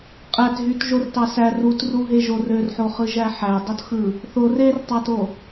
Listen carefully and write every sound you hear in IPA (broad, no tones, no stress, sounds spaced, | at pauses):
qʼ æ t ɦ y t ʒ o r t ɑ s æ r u t r u ɦ e ʒ o r ø r ħ o χ ɯ ʒ æ ħ æ dˤ o t x ɯ | θ o r e r tˤ ɑ t o